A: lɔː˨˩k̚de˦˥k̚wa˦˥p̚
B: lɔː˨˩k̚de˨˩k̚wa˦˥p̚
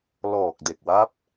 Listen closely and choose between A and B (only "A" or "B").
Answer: B